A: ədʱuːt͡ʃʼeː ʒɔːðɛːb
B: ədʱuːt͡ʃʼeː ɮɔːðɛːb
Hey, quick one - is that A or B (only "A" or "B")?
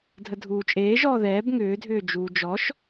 A